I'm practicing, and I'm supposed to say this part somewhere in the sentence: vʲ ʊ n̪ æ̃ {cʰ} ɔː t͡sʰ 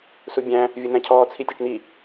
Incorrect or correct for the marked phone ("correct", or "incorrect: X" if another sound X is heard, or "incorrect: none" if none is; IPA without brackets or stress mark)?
correct